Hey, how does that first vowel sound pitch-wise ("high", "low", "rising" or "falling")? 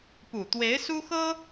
low